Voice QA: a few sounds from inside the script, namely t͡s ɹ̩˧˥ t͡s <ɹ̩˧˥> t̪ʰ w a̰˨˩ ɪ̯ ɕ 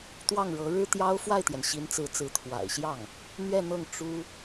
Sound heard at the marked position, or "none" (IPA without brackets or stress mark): ɹ̩˧˥